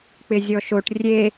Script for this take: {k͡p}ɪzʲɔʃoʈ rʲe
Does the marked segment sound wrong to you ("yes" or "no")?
no